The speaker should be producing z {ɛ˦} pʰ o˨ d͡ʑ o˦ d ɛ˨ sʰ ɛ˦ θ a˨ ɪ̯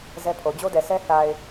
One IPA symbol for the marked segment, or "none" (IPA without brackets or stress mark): ɛ˦